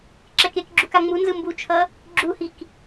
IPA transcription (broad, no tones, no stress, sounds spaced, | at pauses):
ǁ ɛ k e k ɡ͡ǁ u k a ŋ͡m u n z ɯ m b u t͡ʃʰ ʌ | ɡ͡ǁ u h i k